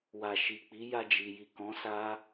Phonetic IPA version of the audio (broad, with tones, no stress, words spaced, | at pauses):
wa˨ ʃi˨k͡pi˨˦ja˧d͡ʒi˨ ji˨kɔ̃˨˦ sa˦